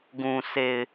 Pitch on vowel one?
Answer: low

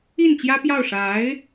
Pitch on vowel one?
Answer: falling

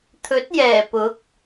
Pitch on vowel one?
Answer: rising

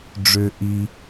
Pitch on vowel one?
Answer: high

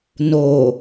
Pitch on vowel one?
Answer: low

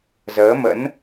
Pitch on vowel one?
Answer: rising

